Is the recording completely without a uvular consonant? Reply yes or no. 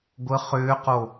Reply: no